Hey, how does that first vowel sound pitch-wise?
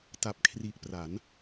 low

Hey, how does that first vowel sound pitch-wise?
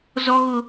high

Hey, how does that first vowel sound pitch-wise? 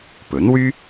rising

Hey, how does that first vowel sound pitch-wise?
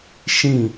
falling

